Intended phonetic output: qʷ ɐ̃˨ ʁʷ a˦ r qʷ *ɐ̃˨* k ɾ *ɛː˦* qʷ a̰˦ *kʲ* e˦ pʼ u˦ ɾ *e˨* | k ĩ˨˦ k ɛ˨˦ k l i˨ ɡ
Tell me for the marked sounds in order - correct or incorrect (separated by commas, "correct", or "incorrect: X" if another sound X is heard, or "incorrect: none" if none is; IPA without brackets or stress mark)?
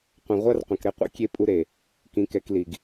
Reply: correct, incorrect: ɛ˦, correct, correct